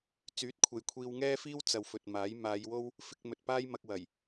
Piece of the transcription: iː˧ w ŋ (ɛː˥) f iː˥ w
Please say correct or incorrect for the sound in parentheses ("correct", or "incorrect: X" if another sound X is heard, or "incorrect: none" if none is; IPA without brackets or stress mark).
correct